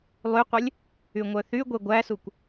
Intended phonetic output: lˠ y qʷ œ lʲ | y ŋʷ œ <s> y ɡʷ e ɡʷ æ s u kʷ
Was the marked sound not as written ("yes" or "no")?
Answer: yes